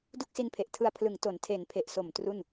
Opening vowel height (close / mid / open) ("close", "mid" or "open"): close